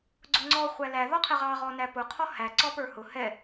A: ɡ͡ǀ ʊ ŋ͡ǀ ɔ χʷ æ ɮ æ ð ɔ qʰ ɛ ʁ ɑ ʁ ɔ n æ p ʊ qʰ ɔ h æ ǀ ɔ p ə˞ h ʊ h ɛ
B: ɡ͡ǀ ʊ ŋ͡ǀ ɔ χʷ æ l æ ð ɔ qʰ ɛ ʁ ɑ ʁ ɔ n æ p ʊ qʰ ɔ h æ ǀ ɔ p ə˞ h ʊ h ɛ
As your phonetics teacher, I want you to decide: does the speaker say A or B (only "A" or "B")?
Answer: B